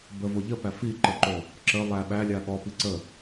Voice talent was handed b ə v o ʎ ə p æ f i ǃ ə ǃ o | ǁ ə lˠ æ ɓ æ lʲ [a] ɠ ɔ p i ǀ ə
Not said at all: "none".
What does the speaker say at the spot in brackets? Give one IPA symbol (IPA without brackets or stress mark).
a